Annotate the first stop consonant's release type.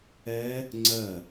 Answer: click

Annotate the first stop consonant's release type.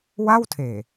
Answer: aspirated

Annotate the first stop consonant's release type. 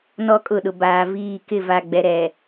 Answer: ejective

